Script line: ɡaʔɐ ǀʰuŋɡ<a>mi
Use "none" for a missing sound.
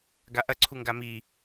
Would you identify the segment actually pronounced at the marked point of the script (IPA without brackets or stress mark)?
a